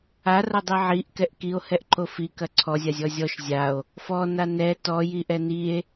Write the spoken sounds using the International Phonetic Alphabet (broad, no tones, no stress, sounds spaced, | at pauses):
a r ɐ dˤ i ʕ i ʔ k ɛ ʔ k i o̯ h ɛ ʔ ǃ o f i k ɐ ǀʰ ɔ zʲ a zʲ ɔ zʲ ɔ ʃ zʲ a o̯ | f ɔ n a n ɛ t ɔ j i ʔ ɛ n i e̯